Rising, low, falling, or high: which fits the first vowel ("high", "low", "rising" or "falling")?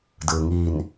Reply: low